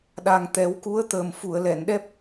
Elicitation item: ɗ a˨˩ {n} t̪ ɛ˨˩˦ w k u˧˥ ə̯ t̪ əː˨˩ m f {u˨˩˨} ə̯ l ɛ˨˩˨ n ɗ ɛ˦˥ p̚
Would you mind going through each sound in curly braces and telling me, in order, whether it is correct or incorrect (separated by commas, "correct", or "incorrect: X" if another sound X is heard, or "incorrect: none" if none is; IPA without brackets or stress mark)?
incorrect: ŋ, correct